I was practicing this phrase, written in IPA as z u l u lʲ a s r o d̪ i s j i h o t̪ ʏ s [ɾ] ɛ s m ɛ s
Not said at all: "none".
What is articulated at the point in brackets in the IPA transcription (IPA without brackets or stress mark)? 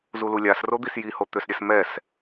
ɾʲ